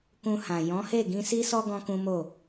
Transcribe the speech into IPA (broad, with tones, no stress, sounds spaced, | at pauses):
k ũ˧ h ã˨ j ɔ̃˨˦ h e˦˨ ɡ ĩ˧ s i˦ s ɔ˦ ɡ ɔ̃˦ k ũ˦ m o˦˨